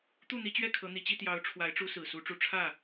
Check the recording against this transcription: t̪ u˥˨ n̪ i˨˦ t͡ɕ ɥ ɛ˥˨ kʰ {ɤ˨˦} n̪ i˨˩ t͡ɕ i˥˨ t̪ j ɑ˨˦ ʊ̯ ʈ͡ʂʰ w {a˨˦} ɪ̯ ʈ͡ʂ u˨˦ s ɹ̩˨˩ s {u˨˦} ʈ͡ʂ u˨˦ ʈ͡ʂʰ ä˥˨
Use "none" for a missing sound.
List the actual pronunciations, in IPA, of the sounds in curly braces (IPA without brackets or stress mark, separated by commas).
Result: ɤ˨˦, a˨˦, u˨˦